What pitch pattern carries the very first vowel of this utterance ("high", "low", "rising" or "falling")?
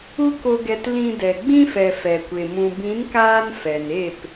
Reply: high